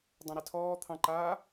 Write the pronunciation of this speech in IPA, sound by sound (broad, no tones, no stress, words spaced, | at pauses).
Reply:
dˤãɾɛtʰɔː t̪ʰɑ̃ǃaː